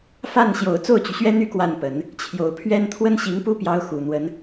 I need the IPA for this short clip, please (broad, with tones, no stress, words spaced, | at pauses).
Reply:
fa˥˩nɕjo˨˩ʊ̯ t͡so˥˩ʊ̯t͡ɕy˩ɕɥɛ˥n̪y˥ kwa˥˩npə˨˩˦n | t͡ɕʰjo˨˩ʊ̯pʰɥɛ˥n t̪ʰwə˥nɕi˧˥ŋpu˥pjɑ˧˥ʊ̯ xu˨˩n̪wə˧˥n